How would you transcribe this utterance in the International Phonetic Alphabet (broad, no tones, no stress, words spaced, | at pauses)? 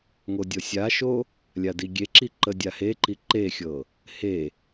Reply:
ŋodʲɤsʲaʃo | lʲadiɡʲeǁi ǃədʲaheǃi ǃexʲɤ | he